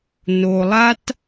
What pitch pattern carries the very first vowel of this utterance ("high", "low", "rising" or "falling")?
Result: low